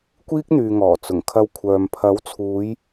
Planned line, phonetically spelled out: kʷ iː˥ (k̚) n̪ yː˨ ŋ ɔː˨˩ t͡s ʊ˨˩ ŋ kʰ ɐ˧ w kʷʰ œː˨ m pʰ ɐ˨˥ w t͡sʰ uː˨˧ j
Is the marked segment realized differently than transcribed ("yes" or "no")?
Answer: no